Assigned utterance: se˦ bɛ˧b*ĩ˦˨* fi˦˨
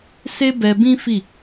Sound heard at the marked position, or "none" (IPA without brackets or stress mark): ĩ˦